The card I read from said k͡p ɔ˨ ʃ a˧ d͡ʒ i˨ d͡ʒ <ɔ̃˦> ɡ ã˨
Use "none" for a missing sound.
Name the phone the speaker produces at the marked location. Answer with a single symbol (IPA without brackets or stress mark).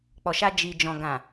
ɔ̃˨